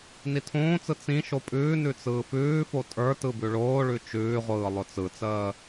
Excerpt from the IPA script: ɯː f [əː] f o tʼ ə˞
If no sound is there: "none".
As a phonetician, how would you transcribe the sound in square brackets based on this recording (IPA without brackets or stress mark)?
ʉː